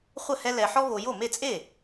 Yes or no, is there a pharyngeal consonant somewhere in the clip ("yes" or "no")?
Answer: yes